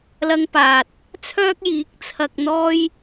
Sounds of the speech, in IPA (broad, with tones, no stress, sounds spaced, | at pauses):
l ɐ˧ ŋ p aː˨ t̚ | t͡sʰ œː˥ k̚ j iː˨˥ k̚ t͡sʰ ɐ˧ k̚ n̪ ɔː˥ j